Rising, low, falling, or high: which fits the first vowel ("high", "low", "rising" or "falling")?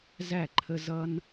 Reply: falling